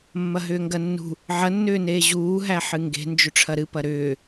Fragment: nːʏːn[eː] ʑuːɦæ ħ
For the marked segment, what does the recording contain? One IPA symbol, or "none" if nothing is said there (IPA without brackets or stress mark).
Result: eː